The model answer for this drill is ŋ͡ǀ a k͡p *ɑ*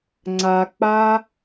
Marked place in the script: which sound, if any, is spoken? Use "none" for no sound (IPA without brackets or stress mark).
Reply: a